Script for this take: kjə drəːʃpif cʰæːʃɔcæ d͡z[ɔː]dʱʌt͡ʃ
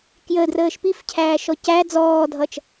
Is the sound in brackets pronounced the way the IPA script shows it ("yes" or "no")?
yes